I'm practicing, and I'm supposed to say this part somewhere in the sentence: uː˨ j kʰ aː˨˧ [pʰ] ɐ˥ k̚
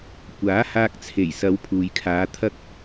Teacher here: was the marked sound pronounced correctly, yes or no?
no